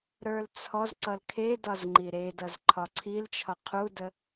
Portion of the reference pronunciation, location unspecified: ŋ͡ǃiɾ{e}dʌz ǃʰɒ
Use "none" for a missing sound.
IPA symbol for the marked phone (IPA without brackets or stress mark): e